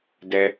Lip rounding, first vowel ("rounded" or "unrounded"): unrounded